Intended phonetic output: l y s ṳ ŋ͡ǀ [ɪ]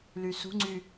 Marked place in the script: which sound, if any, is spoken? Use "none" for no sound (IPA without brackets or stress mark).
y